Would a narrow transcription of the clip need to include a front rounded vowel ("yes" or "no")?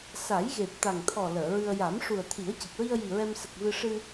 no